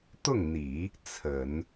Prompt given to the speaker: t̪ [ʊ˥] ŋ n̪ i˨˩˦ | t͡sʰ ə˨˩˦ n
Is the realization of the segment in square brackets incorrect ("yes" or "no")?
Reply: yes